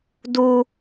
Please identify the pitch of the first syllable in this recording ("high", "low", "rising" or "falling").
high